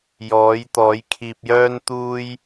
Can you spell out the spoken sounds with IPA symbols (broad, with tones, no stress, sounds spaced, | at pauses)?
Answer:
j ɔː˨˥ j t̪ ɔː˨˥ j kʰ iː˧ p̚ j œː˥ n t̪ uː˥ j